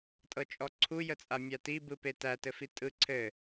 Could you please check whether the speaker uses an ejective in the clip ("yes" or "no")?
yes